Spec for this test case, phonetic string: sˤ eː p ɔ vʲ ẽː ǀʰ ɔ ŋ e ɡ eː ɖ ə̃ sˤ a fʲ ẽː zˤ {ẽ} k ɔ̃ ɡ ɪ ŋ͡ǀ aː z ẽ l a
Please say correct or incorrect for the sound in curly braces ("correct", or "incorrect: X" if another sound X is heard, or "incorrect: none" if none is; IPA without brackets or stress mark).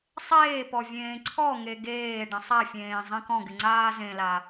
correct